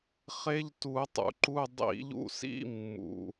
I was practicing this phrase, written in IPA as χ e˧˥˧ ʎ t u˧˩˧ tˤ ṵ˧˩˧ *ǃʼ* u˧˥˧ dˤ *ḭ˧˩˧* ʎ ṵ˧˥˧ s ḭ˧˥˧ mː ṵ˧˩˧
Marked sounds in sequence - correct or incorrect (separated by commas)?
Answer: incorrect, correct